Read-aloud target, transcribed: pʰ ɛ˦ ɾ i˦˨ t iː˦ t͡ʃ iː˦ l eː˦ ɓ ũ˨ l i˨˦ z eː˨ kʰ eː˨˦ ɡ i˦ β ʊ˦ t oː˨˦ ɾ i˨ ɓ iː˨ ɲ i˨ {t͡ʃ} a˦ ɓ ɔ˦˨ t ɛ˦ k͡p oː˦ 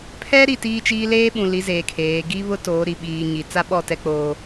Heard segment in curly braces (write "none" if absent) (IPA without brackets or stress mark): t͡s